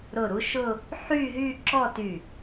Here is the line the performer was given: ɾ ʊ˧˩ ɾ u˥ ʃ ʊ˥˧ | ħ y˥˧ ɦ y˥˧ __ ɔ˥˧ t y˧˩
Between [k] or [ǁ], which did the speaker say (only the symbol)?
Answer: ǁ